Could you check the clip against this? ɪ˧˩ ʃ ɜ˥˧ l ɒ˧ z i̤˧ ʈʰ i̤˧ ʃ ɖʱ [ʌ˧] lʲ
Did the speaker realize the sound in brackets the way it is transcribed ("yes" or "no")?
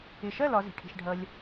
yes